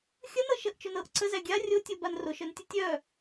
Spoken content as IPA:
xʲ ə n ɤ ʃ ə ʔ t͡ʃ o n ɤ ʔ ǀ ə z æ ɡʲ a rʲ o tʲ o b a n r o ʃ œ n tʲ ə tʲ œ

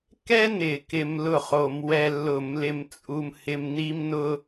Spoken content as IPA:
k ɛ˥ n ɪ˧˩˧ k ɪ˧ m l ʊ˥˩ χ o˧˩˧ m w ɛ˧ lː ʊ˧˩˧ m l ɪ˧ m t͡sʼ u˧ m h ɪ˧ m n i˥ m n ʊ˥

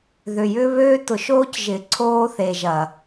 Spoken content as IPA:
ð ʏ˨ j ʏ˦ β øː˦ t ʊ˨ ʃ oː˦ c ʒ ɪ˨ ǀʰ oː˦ θ e˨ ʒ ɐ˨

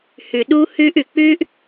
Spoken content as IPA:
h ʉ˨ ɗ uː˦ h ʉː˦ ʔ ʉ˨ k͡p ʉ˦ ʔ

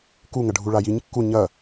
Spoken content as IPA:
k u ŋ ɐ ɖʱ u ɭ a j i ɲ kː u ɲ ɐ

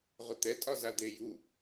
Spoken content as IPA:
ʁ ʊ t̪ ɛ tʼ ɒ z a d̪ e j u

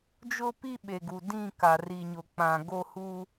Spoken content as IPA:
d͡ʒ ʊ˦ p i˦ ɓ e˨ ɡ u˨ d ĩ˦˨ k a˨ r i˨ ɲ ʊ˨ k͡p ã˨ ɡ o˦ h uː˦

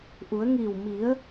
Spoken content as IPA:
ʔ u˩˧ ə̯ ŋ iː˧˩ w m i˩˧ ə̯

